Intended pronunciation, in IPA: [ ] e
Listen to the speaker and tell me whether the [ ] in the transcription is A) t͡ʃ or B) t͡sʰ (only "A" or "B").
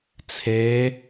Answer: B